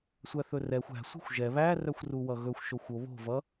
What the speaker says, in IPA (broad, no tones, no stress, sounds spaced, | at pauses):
sʷ æ θ ɵ r ɛ xʷ æ̤ sʷ i̤ xʷ ʒ ɛ β æ r œ xʷ r u w ʌ ɣ ɵ xʷ ʃ o xʷ o β o̤ v ʌ